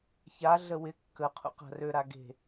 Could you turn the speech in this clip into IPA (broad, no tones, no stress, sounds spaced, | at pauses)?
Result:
ç a ɮ ə w ɪ kː ə qʰ ṵ q a̤ r ø ɾ a ɡ e̤